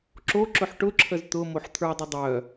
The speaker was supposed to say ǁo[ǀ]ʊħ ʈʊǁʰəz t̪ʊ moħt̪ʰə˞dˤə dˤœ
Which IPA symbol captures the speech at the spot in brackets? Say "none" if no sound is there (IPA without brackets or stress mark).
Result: ǁ